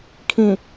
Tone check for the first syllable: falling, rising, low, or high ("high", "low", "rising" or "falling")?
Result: low